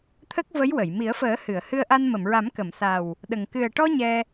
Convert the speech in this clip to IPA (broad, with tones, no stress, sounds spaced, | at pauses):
t̪ʰ ə˦˥ k̚ v ə˧˥ j w ə˨˩˨ j m i˨˩˦ ə̯ f əː˨˩˦ h ɨ˨˩˨ ə̯ h ɨ˧ ə̯ ʔ a˧ n m ə˨˩˨ m ɹ a˨˩˦ m k ə˨˩˨ m s a˨˩ w | ɗ ə˨˩ ŋ k ɨ˨˩ ə̯ ʈ ɔ˧ ɲ ɛ˧